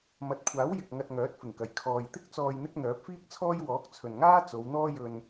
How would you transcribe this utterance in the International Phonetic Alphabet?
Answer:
m ɐ˨ t̚ kʷʰ aː˨˥ w j ɪ˨ k̚ ŋ ɐ˧ t̚ ŋ œː˨˥ t̚ f ɪ˨˩ ŋ k ɐ˨˩ j kʰ ɔː˨ j t̪ ɪ˥ k̚ t͡s ɔː˨ j n̪ ɪ˧ k̚ n̪ œː˨˥ p̚ f iː˥ k̚ t͡sʰ ɔː˥ j w ɔː˨˥ k̚ t͡sʰ ɵ˨ n ŋ aː˥ t͡s o˨˧ w n̪ ɔː˥ j ɵ˧ n

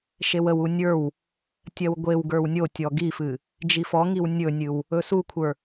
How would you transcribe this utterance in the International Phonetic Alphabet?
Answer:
ʃ e w ə w u nʲ ə˞ w | tʲ ɜ w ɡʷ e w ɡ ə˞ w nʲ o tʲ ɔ ɡ i f ɨ | d͡ʒ i f ɔ ŋ i w nʲ ɵ nʲ ɨ w | ɵ s u kʷʰ ə˞

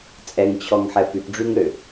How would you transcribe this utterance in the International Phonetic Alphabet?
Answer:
t͡sʼ ɛ ŋ t͡ɕʰ ɔ ŋ ħ ɛ p y p ɖ͡ʐ y ŋ ɾ ø

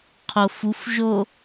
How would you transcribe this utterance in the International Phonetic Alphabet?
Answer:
qʰ o f u f ʒ o

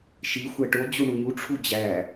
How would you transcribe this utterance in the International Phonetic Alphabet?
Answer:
ʃ i xʷ æ ʈ o d͡ʑ u ɳ u ɲ u ʈ͡ʂʰ u d͡ʑ æ

